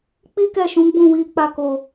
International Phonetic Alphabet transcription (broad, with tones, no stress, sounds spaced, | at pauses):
k͡p i˦ k ɛ˦˨ ʃ ũ˨˦ ɡ͡b ũ˦˨ w i˧ k͡p a˧ k o˨